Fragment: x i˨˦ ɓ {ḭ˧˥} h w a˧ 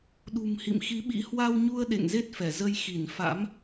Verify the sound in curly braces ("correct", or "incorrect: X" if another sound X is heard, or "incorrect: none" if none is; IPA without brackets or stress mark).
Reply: correct